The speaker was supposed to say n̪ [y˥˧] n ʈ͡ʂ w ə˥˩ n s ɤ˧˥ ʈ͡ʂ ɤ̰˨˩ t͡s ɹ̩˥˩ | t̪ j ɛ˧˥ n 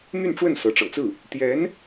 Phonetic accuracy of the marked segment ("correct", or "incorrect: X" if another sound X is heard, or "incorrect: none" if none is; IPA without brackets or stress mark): correct